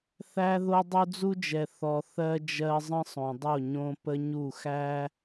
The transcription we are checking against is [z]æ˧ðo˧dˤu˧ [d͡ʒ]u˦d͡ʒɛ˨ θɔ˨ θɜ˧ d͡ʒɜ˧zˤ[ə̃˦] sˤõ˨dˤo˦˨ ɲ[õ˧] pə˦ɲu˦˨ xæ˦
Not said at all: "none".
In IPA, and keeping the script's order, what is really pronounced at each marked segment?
θ, d͡z, ə̃˦, õ˧

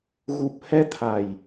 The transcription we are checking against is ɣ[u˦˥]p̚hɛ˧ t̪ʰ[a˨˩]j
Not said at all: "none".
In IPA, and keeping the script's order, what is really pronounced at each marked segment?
u˨˩, a˨˩

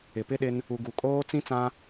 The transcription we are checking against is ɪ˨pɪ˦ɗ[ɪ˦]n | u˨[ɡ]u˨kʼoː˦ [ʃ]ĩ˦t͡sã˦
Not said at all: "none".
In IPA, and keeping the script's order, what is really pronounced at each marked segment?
ɪ˦, ɡ, t͡s

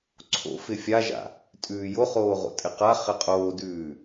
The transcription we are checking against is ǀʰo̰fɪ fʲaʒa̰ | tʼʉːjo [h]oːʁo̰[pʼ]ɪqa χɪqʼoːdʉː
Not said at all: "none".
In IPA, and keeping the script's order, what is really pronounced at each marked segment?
χ, tʼ

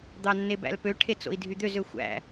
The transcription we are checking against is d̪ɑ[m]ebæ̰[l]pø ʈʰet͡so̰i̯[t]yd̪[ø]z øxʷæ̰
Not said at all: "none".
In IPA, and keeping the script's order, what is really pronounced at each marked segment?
nː, l, dʱ, ø

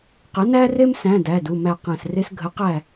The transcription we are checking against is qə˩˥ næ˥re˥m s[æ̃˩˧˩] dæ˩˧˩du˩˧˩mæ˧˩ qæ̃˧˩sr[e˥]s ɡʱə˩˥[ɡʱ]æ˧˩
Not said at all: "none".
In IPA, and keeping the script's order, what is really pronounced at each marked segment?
æ̃˩˧˩, e˥, q

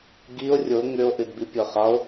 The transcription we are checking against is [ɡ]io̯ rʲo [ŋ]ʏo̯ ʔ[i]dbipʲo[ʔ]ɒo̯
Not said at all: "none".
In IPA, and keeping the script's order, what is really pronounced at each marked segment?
ɡ, ŋ, ɨ, χ

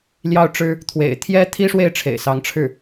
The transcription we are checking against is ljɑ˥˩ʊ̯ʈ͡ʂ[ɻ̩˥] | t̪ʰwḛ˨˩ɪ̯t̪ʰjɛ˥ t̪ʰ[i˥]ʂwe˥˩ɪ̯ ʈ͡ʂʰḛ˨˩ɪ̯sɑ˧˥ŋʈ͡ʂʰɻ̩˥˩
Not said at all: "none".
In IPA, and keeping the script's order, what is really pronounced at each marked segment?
ɻ̩˥, i˥

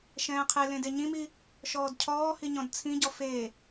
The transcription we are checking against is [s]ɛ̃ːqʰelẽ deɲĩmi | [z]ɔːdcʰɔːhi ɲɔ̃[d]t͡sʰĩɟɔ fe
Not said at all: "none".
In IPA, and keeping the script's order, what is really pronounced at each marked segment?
ʃ, ʃ, d

